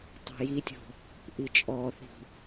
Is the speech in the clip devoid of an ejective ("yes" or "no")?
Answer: no